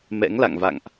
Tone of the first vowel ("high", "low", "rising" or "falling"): rising